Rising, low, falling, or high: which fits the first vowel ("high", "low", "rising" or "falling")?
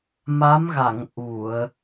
rising